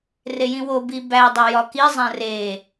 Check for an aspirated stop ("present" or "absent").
absent